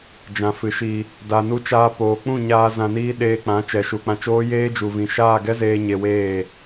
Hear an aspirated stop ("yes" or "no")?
no